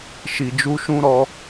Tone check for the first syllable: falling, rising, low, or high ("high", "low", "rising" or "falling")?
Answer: low